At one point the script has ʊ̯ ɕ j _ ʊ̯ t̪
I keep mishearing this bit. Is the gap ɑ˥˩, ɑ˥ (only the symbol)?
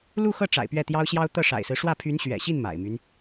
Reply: ɑ˥